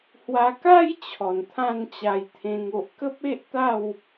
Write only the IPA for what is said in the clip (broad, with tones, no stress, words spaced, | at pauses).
hwa˧ka˦j t͡ɕʰɔ˨˩nt̪ʰã˥˧nt͡ɕa˧jt̪ʰẽ˧ŋ o˨ʔkə˦p̚e˦ʔ t̪a˥˧w